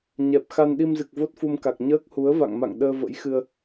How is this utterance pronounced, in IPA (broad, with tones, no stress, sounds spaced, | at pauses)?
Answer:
ɲ ɛ˨˩ p̚ x a˧ n ɗ i˧ m z ɨ˨˩ k̚ v o˦˥ t̚ f u˧ m k a˨˩ k̚ ɲ əː˦˥ k̚ h u˨˦ ə̯ v a̰˧˨ ŋ m a̰˧˨ ŋ ɗ əː˧ v ə̰˧˥ j x ɨ˧ ə̯